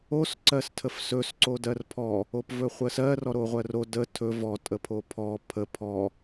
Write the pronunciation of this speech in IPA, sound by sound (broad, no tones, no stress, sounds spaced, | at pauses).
o s ǀ ɜ s tʰ ə f s ɵ s ǀ o d ɜ r pʰ ɔ | o p v ɵ χʷ ə s ɜ r ɔ ɾ o ʁʷ ɜ r o d ə tʰ ɵ v ɔ tʼ ə pʰ o pʰ ɔ pʰ ə pʰ ɔ